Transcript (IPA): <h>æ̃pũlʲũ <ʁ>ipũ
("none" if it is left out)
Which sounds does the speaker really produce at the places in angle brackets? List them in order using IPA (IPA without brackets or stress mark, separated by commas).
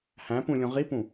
h, ʁ